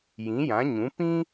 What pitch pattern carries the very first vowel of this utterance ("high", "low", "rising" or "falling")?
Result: rising